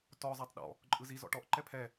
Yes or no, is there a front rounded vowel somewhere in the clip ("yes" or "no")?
no